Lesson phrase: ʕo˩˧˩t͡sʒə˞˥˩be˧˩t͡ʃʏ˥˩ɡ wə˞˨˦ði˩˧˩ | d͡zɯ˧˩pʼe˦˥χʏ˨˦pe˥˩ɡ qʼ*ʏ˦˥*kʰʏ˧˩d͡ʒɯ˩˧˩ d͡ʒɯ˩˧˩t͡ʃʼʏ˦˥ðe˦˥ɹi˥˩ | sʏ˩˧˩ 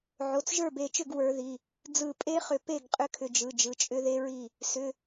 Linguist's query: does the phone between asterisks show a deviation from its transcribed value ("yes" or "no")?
no